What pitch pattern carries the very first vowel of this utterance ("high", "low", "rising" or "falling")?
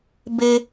high